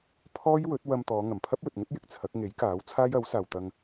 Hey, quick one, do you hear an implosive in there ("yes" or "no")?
no